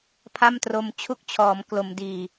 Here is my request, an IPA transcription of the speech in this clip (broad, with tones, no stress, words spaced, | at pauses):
pʰa˥˩mtro˧m t͡ɕʰu˦˥k̚t͡ɕʰɔː˩˦m klo˩˦m diː˨˩